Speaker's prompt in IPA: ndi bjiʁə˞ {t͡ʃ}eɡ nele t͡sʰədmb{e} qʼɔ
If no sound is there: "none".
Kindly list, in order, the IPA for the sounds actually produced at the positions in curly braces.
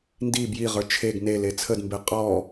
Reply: t͡ʃʰ, e

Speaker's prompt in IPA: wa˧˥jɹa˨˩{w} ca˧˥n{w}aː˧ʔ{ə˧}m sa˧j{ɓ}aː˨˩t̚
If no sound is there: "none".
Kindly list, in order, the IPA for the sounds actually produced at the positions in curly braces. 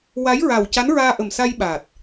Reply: w, ɹ, ə˨˩, ɓ

